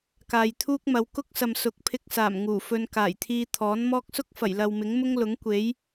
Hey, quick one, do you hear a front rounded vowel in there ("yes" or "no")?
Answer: no